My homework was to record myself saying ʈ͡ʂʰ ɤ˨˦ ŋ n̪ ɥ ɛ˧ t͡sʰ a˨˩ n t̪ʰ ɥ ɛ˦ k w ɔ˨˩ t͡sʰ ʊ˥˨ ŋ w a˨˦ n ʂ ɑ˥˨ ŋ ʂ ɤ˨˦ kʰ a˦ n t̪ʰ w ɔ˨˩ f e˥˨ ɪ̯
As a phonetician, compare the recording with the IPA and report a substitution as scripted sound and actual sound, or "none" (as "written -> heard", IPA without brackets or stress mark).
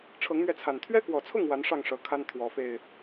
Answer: none